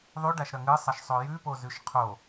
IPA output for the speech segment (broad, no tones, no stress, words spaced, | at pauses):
ðˤʉɖaʃɾɐ ŋɨsˤɐʃsˤo jʉpozʉʃ qʰo